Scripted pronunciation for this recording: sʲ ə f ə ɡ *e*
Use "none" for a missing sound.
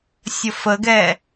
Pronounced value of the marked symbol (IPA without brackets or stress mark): ɛ